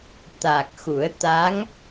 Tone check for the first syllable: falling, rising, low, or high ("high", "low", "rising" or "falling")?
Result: low